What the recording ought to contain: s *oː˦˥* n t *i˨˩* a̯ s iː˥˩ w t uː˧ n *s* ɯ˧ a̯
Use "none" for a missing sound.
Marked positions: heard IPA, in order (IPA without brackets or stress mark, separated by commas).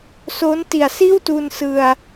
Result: oː˦˥, i˨˩, s